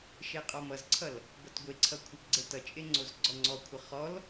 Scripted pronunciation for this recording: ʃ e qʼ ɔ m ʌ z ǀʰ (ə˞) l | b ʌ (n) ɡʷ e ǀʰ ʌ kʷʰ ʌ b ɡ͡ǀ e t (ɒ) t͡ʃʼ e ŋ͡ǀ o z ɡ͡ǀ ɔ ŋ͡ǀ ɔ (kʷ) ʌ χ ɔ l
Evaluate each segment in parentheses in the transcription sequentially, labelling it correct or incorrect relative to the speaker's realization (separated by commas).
incorrect, incorrect, incorrect, incorrect